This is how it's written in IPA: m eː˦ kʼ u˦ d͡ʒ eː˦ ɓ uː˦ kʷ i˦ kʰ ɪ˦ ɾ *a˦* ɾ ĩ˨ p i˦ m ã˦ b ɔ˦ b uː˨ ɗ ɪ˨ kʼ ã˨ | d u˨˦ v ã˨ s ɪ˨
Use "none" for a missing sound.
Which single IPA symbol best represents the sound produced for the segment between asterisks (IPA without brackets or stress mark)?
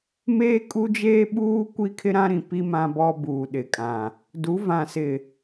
ã˦